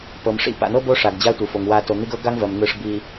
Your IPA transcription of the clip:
pɤ˩mʂḭ˥ pa̰˨n̪ɤ˥bo˦ ʂa˩ɡd͡ʑa˦tʷɯ˩fo˩ŋ wa˨to˩ n̪i˦ɡɤ˥ɡa˥ŋvɜ˩m n̪ɯ˨ʂbi˨

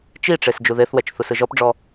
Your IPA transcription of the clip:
t͡ʃiʈ͡ʂes d͡ʒuðeθwɛt͡ʃ θusɯʒɔpɖ͡ʐɔ

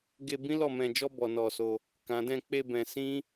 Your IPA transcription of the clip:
ɡe˧ bĩ˦lɔ˦˨mɛ̃˧d͡ʒɔ˦ bɔ˧nɔ˧so˧ | kã˨dɛ̃˧ k͡pe˧ bɛ̃˧sĩ˦

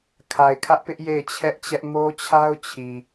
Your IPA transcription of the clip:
kʰa˨ɪ̯kʰä˦ʔpɪ˦ʔ je˦˨ɪ̯t͡ɕʰɛ˦ʔt͡ɕɛ˦ʔ mo˦t͡ɕʰa˦ʊ̯t͡ɕʰi˨

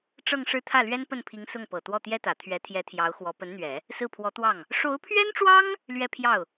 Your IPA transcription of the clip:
ʈ͡ʂɤ˥˧ŋʂɻ̩˥˧ t̪ʰä˥˩lɥɛ˥npə˥˩npʰi˧˥ŋ sʊ˥˩ŋpɤ˨˩ t̪wɔ˥˩t̪jɛ˥t̪ä˨˩ t̪ʰɥɛ˧˥t̪ʰjɛ˧˥t̪ʰjɑ˧˥ʊ̯ xwɔ˧˥ pə˧˥nn̪ɥɛ˨˩˦ | sɹ̩˥˩pʰwɔ˧˥t̪wɑ˥˩ŋ | ʂo˧˥ʊ̯pʰɥɛ˥nʈ͡ʂwɑ˥ŋ | lɥɛ˥˧pʰjɑ˥˩ʊ̯

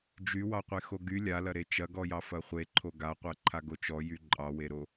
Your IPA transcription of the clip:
d͡ʒywɑqʷe xoɡy lʲalɐɾe t͡ʃɐɡɔjɑ fɐχʷe ǃʰoɡaqʷɜǃʰa ɡot͡ʃɔ jyǃʼɑweɾo

